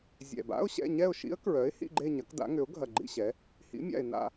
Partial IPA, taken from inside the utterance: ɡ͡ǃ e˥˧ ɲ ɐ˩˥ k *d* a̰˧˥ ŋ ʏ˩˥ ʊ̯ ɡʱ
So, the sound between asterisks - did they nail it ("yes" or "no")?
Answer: yes